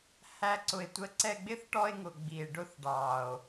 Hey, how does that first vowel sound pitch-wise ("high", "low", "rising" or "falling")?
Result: high